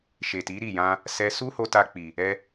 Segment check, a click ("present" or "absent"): absent